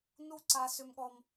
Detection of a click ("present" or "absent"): present